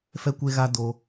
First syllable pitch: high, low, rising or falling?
high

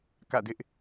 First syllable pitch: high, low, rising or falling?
falling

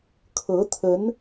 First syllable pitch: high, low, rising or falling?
rising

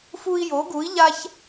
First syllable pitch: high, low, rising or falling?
high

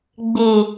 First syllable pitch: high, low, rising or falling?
low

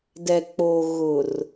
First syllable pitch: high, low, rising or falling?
low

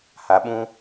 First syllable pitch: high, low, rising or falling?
low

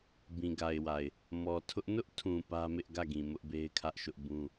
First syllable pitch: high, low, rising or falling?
low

